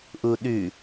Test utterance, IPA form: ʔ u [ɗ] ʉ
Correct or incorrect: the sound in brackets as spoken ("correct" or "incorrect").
correct